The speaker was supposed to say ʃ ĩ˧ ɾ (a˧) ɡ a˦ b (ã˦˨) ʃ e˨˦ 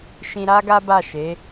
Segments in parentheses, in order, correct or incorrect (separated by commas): incorrect, incorrect